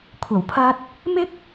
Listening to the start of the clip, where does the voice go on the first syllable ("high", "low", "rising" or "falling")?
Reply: low